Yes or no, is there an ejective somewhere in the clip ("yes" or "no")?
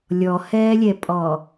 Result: yes